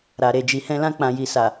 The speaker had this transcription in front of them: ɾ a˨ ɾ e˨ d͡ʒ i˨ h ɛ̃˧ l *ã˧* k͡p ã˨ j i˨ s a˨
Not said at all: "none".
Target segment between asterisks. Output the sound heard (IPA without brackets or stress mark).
ã˧